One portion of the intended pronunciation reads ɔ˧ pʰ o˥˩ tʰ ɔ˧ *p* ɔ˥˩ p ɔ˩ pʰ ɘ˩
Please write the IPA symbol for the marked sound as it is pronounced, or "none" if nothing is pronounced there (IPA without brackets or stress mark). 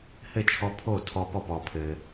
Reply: p